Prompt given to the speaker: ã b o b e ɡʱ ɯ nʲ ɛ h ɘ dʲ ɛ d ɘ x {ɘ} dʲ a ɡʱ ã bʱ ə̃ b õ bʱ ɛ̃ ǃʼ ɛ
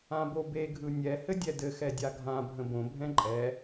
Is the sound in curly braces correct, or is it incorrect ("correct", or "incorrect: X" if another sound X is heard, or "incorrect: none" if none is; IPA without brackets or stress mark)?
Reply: incorrect: ɛ